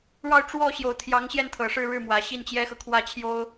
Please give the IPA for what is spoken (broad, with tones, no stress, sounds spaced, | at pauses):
ɻ ɑ˥˧ ʊ̯ ʈ͡ʂ w ɔ˥˩ ɕ j o˨˩ ʊ̯ t̪ʰ j ɑ˧˥ ŋ ɕ j ɛ˥˩ n t̪ʰ ɤ˨˩ ʂ ɻ̩˥˧ ɻ ɻ̩˥˩ m w ä˨˩ ɕ i˥˩ n t͡ɕ j ɛ˥ x ɤ˨ kʰ w ä˥ t͡ɕʰ j o˥ ʊ̯